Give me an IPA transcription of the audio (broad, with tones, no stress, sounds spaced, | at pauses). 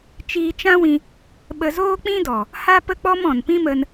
t͡ʃ iː˧ t͡ʃ ã˦ w ĩ˧ | ɓ ə˧ z oː˦ k͡p ĩ˦ d ɔ˨ | h a˦ p ə˦ k͡p ɔ˦ m ɔ̃˨ n p ĩ˦ m ə˧ n